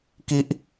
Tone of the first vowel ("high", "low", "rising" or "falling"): high